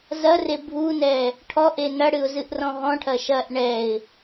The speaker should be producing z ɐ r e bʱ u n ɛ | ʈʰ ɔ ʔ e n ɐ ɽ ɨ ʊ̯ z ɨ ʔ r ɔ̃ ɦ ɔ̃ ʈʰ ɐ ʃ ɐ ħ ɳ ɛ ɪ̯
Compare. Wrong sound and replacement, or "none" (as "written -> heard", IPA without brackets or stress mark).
ħ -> ʔ